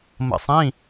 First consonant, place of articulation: labial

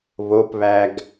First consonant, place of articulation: labial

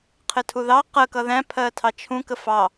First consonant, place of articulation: uvular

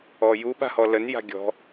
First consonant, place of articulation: palatal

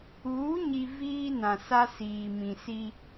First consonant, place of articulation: palatal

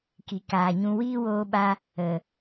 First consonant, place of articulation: velar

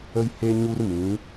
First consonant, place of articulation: palatal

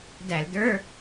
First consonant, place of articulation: alveolar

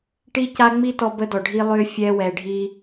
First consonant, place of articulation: retroflex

